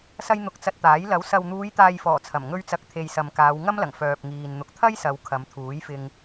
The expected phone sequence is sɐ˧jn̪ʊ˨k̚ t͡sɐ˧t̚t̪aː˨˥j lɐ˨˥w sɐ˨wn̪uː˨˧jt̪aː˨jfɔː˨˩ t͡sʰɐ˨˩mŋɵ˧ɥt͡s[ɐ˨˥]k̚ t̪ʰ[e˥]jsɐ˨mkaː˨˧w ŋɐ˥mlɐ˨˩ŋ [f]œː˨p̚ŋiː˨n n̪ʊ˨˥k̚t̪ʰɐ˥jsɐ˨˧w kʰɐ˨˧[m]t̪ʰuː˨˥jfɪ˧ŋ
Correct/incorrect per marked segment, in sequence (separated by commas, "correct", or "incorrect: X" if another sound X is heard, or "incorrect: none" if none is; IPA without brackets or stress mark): correct, incorrect: e˨, correct, correct